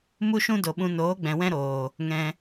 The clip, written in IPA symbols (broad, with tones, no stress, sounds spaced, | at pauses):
m u˦ ʃ ũ˦ d o˨ ɓ ũ˧ n oː˨˦ ɡ͡b ɛ̃˨ w ɛ̃˦ ɾ oː˨ | ŋ ɛ̃˧